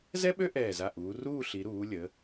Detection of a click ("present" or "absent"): absent